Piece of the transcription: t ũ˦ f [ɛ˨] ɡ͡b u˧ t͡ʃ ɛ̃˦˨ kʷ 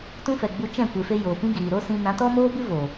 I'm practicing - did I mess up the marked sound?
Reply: no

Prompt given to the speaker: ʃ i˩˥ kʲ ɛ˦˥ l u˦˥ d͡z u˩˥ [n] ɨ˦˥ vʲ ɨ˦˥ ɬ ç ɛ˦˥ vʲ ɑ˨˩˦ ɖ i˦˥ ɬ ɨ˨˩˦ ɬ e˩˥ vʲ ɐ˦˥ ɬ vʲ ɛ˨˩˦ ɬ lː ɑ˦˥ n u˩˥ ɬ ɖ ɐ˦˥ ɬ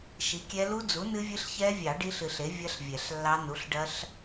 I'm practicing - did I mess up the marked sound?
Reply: no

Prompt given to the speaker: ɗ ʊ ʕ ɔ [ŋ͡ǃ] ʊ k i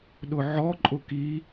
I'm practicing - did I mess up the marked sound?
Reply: yes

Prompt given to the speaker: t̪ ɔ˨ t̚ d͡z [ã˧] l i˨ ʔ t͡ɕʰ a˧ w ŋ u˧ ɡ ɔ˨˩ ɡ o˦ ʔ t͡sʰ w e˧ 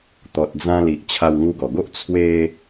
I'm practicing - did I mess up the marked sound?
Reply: no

